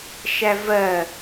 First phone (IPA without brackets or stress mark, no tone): ʃ